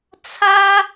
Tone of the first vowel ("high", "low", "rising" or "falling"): high